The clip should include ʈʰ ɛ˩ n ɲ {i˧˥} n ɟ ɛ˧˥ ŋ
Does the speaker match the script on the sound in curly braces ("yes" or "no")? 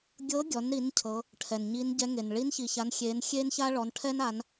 yes